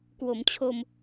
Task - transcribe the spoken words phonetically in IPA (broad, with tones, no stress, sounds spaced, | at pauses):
k w o˩˦ m t͡ɕʰ o˧ m